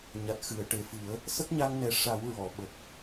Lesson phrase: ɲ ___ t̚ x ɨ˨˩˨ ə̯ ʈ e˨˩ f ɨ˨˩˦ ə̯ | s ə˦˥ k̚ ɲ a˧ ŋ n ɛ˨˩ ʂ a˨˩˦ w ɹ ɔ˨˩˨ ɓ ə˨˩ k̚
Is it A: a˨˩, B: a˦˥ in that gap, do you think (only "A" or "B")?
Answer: A